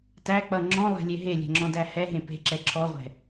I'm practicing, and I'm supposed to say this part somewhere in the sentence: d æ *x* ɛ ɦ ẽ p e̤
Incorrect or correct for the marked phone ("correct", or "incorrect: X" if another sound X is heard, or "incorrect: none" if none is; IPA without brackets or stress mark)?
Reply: incorrect: h